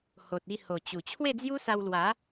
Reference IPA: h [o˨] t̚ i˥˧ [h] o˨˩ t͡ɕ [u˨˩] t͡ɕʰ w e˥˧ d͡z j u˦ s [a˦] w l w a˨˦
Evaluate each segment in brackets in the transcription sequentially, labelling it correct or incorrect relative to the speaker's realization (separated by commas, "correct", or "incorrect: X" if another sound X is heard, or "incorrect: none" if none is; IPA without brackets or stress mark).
correct, correct, correct, incorrect: a˧